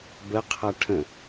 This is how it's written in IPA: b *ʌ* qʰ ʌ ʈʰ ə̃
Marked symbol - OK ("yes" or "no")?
no